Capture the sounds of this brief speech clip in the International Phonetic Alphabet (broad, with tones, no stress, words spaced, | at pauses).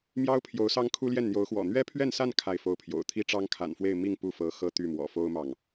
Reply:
mjɑ˥ʊ̯ pʰjo˧˥ʊ̯sɑ˥ŋkʰu˥ ljɛ˥˩nn̪jo˧˥ʊ̯xwɔ̰˨˩ n̪ɥɛ˥pʰɥɛ˥˧nsa˥˧n kʰa˥˩ɪ̯fo˥ʊ̯pʰjo̰˨˩ʊ̯ t̪ʰi˥ʈ͡ʂɑ˥ŋkʰa̰˨˩nfwe˥˧ɪ̯ mi˥˧ŋ pu˥˩fɤ˧˥ xɤ˥˧t̪y˥˩mwɔ̰˨˩ fo˥ʊ̯mɑ˨ŋ